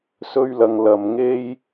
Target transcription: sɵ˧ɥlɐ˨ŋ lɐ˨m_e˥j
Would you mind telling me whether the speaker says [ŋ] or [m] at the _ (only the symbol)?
ŋ